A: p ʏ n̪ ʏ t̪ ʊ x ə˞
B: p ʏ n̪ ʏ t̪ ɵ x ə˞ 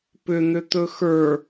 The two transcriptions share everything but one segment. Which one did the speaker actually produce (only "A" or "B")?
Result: B